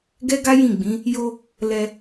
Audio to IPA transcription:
ɡ ɛ˦ ɡ a˦ j ĩ˦˨ ɡ͡b ĩ˨˦ | j o˧ | l ɛ˧

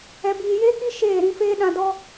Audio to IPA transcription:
ɛ˨ b iː˨ j eː˦ k i˦ ʃ eː˦˨ ɾ ĩ˧ f eː˦ ɗ ã˧ d ɔ˧

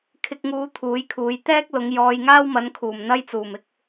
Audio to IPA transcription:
kʰ ɪ˧ k̚ ŋ uː˧ t̪ʰ uː˨˥ j kʰ uː˨˧ j t̪ ɛː˥ k̚ l ʊ˨˧ ŋ j ɔː˧ j ŋ aː˥ w m ɐ˨˥ n kʰ uː˨˩ m n̪ ɐ˥ j t͡s uː˨˩ m ɪ˥ k̚

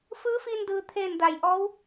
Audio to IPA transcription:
f ɯː˧˥ f iː˧ n d ɯː˩ t̪ʰ eː˧˩ n d a˩ j ʔ ɔː˧˥ w

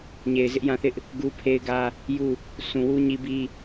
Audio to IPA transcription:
ɲ e˨ ɪ̯ z ɪ˦ ʔ j ã˦ θ ɪ˦ ʔ | ɡ u˦ pʰ e˦ ɪ̯ ɡ ä˦ | j u˦˨ | sʰ ũ˨ w u˦ ɲ i˦ b i˦

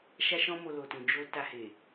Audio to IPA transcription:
ʃ a˦ ʃ ɔ̃˦ m o˧ l o˨ t ũ˨ d͡ʒ o˧ t a˧ h e˨

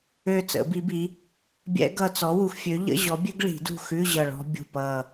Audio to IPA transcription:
ø˦˨ t͡s ə̰˨˩˦ b i˨˥ b i˨˥ | bʲ ɛ̰˦˥ ɡ ʌ˦˨ t͡s ɔ˨˥ w u˨ x fʲ ø˨˥ ʎ ə̰˧˥˧ ʑ ɔ˨˥ bʲ ø˦˥ ɡ ɭ i̤˨˩˦ d ṳ˦˨ x ʉ˧˥˧ ʑ ʌ˦˨ ɭ ɔ̤˦˥ bʲ ṳ˦˨ p ʌ˦˨

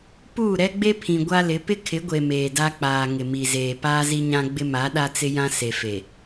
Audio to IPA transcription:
p uː˦˨ ɾ ɛ˦ ɡ͡b e˦ pʰ ĩ˨ ɡʷ a˦ l ɪ˨˦ p ɪ˦ kʰ ɪ˨˦ ɡʷ e˨ m eː˨ d a˦ k͡p aː˨ ŋ ɪ˨ m i˨ z eː˨ p aː˦ z i˦ ɲ ã˦ ɡ͡b ɪ˦ m a˨˦ ɗ a˦ t͡s ɪ˦ j ã˦ s e˨ f e˨

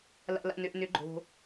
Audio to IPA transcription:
l a̰˨ l a̰˨ n ø˨ ʔ n ʏ˨˩˦ ɡ͡ǃ o̤˨

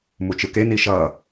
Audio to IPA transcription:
m u t͡ʃ ɯ k e n i ʃ ʌ

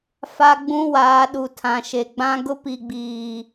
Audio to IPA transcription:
f a˦ ɡ͡b ũ˦ w aː˨˦ ɗ u˨ tʰ ã˨ ʃ e˨ ɡ͡b ã˦ ɡ ʊ˦ p i˨ ɡ͡b iː˨

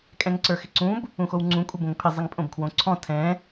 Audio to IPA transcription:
kʼ ɛ̃ ŋ ǀ ə˞ x ɪ ǀ ũ b | ũ x o w ŋ͡ǀ ũ kʷʼ ɪ b õ ŋ pʰ ɪ zˤ ɪ ŋ pʼ õ b kʰ w õ ǀʰ ɔ̃ tʰ ɛ̃

